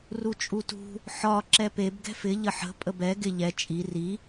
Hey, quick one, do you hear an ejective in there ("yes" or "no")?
yes